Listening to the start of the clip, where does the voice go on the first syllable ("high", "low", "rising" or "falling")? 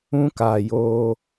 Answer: high